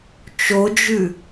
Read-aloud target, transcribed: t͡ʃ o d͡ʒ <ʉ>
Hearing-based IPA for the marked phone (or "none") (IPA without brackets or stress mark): ʉ